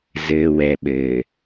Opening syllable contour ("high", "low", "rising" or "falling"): low